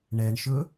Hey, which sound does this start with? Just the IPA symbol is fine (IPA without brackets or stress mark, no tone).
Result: ɳ